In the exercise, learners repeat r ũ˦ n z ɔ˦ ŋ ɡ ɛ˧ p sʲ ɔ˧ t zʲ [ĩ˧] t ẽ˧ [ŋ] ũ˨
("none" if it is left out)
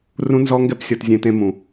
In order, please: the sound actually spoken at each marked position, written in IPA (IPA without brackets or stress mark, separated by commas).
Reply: ẽ˧, m